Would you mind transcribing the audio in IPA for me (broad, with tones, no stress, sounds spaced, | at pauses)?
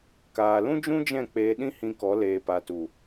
k aː˨ l ũ˦ d͡ʒ ũ˦ d͡ʒ ɛ̃˦˨ k͡p eː˧ ɗ ĩ˦ h ĩ˧ k ɔ˨˦ l eː˨ p a˨ t u˨